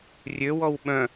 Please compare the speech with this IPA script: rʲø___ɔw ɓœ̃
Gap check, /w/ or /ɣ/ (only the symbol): w